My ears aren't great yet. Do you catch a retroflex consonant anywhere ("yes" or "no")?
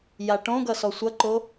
yes